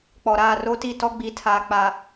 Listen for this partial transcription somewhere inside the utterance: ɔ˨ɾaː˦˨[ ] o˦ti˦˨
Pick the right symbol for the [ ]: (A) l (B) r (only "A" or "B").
B